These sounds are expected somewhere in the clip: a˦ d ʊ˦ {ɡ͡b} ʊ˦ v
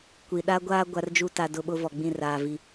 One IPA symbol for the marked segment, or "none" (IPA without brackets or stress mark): ɓ